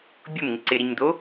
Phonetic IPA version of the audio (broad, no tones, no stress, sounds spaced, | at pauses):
bʲ ʊ m ŋ ɪ ǀ ɪ ɾ i ɲ d̪ o